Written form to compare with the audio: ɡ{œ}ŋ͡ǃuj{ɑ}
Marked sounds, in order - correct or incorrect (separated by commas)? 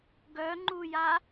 correct, incorrect